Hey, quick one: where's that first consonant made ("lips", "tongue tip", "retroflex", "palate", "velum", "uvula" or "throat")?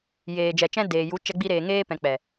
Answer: palate